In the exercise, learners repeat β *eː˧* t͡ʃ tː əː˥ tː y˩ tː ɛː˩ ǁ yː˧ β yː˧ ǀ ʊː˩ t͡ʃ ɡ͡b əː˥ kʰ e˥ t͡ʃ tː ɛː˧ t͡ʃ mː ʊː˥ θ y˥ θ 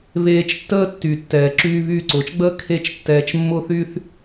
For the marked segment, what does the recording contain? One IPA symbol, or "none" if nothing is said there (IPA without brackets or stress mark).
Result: eː˧